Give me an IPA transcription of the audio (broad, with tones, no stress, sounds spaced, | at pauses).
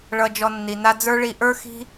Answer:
ɭ ʌ˧ d͡ʒ ɔ˧ nː i˨ n a˧ d͡z ə˞˦ ɭ i˧ ʔ ə˞˦ x i̤˦